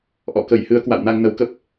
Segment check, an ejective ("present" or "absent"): absent